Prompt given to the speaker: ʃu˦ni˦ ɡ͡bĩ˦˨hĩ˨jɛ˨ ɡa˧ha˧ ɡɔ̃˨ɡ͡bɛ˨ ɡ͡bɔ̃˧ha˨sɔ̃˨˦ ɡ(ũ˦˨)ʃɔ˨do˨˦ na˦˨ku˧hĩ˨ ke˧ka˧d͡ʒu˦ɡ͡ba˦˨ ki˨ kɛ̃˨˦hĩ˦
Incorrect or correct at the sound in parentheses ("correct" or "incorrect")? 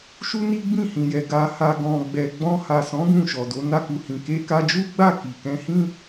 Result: correct